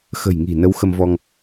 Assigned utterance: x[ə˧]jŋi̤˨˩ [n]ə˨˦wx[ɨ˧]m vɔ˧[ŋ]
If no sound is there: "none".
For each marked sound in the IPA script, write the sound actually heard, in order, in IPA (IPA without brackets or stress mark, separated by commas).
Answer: ə̤˨˩, n, ə˧, ŋ